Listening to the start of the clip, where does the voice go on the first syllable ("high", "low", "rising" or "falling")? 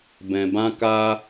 low